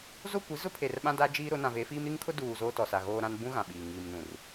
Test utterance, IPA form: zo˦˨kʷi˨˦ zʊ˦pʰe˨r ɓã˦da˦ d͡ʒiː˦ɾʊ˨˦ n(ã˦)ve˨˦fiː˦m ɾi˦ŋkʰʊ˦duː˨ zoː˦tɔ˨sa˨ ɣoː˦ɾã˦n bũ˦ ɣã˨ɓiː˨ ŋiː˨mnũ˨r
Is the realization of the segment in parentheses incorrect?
yes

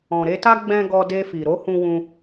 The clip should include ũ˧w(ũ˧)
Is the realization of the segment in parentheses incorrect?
no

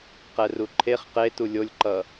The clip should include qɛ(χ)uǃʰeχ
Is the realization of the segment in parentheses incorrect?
yes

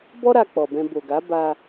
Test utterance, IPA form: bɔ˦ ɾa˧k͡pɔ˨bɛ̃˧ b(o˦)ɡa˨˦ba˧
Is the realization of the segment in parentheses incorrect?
yes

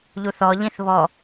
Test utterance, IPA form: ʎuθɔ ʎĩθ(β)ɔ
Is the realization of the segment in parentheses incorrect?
no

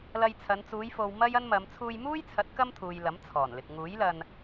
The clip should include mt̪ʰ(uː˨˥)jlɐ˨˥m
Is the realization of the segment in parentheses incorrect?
yes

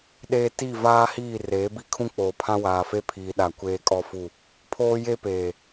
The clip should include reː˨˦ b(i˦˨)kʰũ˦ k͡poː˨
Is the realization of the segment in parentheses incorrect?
no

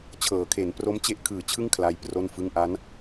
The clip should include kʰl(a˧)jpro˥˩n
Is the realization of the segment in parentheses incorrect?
yes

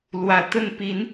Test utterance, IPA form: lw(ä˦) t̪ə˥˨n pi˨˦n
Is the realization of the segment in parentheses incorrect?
yes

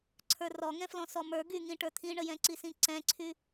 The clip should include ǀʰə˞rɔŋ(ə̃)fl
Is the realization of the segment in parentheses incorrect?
yes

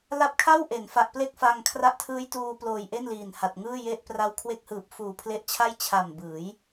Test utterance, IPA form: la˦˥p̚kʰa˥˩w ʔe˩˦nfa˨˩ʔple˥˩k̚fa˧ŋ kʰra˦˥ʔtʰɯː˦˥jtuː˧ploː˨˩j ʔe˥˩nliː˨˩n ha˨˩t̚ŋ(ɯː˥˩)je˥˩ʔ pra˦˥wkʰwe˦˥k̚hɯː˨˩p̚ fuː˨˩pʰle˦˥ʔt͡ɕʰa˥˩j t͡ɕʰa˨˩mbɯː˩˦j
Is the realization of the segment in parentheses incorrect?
no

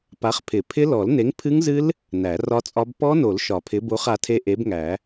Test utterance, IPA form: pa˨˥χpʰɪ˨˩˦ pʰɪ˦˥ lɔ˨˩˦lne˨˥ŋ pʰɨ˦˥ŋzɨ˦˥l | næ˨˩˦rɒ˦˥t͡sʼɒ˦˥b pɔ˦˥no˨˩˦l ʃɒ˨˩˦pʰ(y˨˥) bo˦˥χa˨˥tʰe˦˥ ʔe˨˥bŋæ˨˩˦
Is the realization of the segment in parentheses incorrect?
yes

